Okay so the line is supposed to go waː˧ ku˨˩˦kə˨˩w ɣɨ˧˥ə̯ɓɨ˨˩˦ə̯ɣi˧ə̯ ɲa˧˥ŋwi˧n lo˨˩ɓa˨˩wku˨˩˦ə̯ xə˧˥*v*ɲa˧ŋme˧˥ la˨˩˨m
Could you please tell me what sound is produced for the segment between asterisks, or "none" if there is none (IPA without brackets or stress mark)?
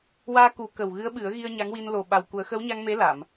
w